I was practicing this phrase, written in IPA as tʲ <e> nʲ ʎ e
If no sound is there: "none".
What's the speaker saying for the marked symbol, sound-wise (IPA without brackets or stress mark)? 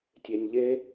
e